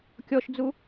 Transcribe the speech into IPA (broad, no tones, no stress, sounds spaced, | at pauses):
kʲ ɔ ʃ d͡z u